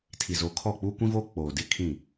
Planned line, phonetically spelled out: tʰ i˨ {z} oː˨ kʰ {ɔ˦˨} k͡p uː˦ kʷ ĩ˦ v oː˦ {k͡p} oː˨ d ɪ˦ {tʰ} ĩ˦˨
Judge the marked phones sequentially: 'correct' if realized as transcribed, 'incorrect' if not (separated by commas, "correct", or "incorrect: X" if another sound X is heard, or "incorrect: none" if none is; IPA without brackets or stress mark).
correct, correct, correct, incorrect: kʰ